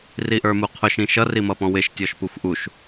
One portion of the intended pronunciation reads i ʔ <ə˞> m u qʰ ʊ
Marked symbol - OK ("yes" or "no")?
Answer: yes